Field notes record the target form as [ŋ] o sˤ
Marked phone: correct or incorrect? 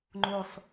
incorrect: ŋ͡ǃ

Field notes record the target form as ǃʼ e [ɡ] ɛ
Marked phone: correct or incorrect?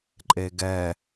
correct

